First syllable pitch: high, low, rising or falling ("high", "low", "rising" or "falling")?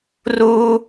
high